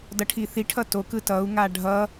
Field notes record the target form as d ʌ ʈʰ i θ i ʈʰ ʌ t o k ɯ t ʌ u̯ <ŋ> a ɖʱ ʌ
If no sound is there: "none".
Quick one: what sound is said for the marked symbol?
ŋ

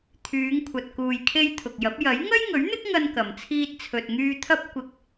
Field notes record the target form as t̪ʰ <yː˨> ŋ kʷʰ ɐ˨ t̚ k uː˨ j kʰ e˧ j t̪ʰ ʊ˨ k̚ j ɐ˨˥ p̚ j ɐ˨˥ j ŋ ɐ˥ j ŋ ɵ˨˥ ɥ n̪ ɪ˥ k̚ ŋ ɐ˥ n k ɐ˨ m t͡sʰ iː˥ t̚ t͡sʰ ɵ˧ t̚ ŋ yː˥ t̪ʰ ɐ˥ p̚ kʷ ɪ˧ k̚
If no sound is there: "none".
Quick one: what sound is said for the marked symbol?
yː˨˧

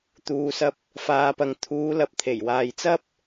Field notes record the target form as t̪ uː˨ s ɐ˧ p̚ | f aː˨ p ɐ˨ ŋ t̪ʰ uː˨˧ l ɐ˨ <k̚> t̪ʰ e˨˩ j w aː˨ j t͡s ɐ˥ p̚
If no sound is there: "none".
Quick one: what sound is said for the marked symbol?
p̚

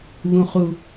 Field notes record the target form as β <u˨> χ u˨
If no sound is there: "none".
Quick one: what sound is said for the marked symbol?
ũ˨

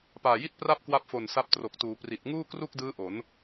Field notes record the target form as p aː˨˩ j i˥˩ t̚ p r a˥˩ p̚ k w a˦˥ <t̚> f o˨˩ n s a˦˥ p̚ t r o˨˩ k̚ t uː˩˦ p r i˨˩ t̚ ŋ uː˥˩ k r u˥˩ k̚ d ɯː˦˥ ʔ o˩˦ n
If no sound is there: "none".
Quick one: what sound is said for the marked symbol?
p̚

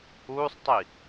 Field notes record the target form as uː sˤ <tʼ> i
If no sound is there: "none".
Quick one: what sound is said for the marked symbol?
tˤ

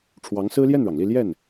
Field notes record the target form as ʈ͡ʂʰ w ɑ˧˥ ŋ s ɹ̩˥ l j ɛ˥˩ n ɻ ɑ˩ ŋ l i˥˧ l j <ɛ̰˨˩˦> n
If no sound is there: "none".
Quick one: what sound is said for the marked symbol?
ɛ˥˩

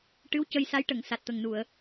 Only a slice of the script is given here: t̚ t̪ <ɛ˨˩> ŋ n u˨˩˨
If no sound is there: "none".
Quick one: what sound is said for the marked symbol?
ə˨˩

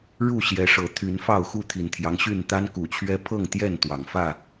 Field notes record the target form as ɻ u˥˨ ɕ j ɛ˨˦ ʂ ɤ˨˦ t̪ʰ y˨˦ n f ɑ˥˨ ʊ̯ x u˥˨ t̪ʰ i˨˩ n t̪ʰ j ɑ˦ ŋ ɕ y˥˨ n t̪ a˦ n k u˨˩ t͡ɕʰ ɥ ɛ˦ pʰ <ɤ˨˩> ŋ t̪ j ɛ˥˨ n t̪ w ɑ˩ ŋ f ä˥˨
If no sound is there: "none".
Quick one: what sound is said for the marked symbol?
ɤ˥˨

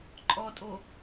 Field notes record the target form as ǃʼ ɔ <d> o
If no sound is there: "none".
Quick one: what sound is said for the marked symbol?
tʼ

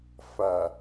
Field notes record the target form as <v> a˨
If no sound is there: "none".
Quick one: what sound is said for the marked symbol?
f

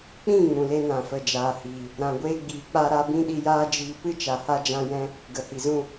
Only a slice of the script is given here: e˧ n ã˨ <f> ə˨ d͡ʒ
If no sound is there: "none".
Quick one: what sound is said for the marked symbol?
f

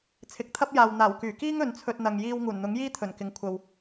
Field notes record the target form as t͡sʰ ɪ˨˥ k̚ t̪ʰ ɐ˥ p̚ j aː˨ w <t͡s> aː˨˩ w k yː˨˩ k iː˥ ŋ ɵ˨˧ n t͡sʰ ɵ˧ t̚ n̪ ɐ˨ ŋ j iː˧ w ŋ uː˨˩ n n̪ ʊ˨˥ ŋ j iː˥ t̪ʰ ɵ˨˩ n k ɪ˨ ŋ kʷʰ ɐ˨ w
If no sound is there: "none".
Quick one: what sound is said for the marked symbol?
n̪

